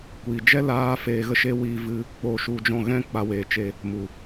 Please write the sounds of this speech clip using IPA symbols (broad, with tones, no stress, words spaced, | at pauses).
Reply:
kʷiː˨d͡ʒɛ˦ laː˦feː˧ɣə˦ʃe˦ wiː˧vɨ˧ | k͡poː˧ʃu˧d͡ʒɔ̃˦˨ ɣɛ̃˦ k͡pa˧weː˨t͡ʃe˧ | mu˨